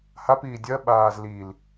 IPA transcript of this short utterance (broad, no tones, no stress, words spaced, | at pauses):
hapiː dʲɜɓaːz lil